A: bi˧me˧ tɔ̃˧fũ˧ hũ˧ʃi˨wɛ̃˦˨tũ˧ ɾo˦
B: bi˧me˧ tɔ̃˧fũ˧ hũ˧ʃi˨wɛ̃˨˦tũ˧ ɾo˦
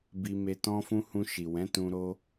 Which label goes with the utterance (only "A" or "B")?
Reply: B